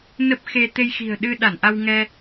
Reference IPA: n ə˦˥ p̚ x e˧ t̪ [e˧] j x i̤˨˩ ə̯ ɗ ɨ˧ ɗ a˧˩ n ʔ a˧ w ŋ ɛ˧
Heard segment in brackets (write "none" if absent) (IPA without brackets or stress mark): e˧